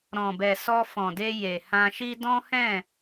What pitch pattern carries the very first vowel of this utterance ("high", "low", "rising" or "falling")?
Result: low